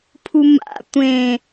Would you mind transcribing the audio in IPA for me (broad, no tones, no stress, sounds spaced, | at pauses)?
pʰ u m a̰ tʷ ẽ